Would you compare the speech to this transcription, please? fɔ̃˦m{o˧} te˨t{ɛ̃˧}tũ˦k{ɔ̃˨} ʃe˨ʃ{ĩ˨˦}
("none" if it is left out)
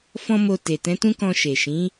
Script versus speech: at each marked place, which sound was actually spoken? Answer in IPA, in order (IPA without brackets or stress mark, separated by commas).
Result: o˧, ɛ̃˨˦, ɔ̃˧, ĩ˨˦